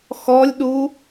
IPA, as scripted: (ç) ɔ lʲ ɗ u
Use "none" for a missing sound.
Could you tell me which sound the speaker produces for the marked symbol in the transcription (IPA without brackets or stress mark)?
x